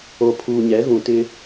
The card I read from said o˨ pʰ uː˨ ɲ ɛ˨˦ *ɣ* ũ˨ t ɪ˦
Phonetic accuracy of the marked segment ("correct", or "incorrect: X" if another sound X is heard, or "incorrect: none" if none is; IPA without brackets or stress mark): correct